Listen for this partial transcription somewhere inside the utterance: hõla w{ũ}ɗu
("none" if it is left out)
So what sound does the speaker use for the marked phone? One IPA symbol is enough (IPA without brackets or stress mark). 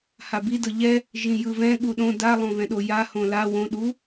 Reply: õ